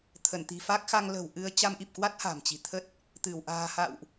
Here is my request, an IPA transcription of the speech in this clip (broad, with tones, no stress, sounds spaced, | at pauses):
t̪ʰ ə˧˩ n t̪ i̤˨˩ f a˦˥ k̚ x a˧ ŋ l ə̤˨˩ w ʔ ɨ˧ ə̯ t͡ɕ a˧ m ʔ i˨˩ p̚ k w a˦˥ t̚ h a̤˨˩ m t͡ɕ i̤˨˩ t̪ʰ ə˦˥ t̚ | t̪ ɨ˧˩ w ʔ a̤ː˨˩ h a̰˧˨ w ʔ